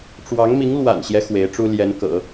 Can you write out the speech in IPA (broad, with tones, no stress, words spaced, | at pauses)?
ʈ͡ʂwɑ˧˥ŋmi˧˥ŋ lwa̰˨˩nɕjɛ˦ xwe˧˥ɪ̯ʈ͡ʂu˥ ljɛ˧˥nkɤ̰˨˩˦